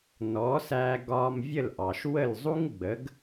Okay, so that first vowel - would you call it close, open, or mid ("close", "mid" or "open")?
mid